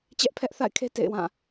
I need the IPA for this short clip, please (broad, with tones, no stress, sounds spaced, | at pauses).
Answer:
t͡ɕ ɛ˦ ʔ pʰ ɛ˦ ʔ θ a̰˦˨ ɪ̯ kʰ e˦ t ḛ˦˨ ɪ̯ w ã˦˨